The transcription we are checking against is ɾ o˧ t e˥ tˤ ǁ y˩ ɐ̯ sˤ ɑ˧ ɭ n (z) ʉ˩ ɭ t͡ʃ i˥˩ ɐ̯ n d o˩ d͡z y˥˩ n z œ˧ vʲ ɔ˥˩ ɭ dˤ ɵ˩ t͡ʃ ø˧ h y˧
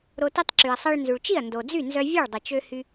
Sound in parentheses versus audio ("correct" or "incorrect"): correct